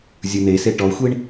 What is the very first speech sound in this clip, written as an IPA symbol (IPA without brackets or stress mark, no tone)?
zʲ